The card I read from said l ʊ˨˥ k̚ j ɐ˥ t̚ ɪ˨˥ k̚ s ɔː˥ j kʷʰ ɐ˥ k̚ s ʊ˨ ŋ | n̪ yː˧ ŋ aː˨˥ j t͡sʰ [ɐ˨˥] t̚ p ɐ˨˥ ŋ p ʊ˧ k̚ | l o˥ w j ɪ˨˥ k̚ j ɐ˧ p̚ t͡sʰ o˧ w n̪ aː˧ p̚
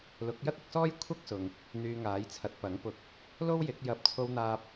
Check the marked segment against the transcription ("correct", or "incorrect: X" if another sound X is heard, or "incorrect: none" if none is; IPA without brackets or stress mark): correct